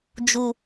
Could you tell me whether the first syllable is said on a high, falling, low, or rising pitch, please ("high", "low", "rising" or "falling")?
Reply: low